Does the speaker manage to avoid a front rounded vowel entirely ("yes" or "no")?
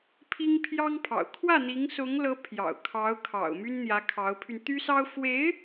no